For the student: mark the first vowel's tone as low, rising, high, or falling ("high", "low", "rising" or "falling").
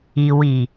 low